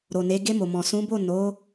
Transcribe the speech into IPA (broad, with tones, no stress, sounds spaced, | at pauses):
ɾ o˨ n e˨˦ ɡ e˧ m o˨ m ɔ̃˨ s ũ˨˦ b o˦˨ n o˨˦